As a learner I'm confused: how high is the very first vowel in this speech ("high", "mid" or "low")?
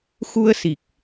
high